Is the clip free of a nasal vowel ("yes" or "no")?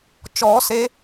yes